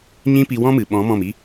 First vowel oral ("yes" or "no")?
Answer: no